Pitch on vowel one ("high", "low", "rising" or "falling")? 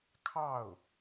falling